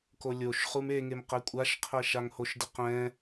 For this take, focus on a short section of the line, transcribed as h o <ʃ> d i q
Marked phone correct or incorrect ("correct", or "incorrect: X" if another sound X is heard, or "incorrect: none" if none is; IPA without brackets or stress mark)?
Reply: correct